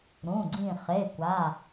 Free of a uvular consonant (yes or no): no